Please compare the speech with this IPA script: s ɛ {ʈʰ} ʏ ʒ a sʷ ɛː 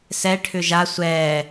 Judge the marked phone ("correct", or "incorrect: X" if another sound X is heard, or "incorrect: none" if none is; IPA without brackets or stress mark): correct